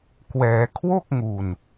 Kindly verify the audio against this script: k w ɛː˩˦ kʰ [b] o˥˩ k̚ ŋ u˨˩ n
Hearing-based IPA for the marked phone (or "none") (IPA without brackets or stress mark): w